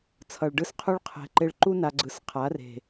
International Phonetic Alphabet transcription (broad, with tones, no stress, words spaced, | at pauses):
t͡sʰʌ˨ɭ ɖɯ˦sqʰu˦ɭ qʰɛ̤˨ ǃe˧ɭǃu˦ na˧ ɡ͡ǀɯ˨sqʰa˨˦re̤˨